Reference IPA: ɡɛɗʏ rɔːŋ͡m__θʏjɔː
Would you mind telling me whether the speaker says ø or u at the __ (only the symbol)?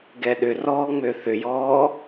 ø